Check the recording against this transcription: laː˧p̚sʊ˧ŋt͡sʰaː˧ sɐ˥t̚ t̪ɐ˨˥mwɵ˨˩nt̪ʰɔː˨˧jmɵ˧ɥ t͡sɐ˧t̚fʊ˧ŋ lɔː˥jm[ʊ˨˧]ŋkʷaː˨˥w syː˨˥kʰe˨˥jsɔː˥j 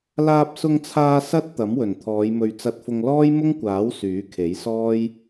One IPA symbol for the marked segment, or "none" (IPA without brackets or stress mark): ʊ˥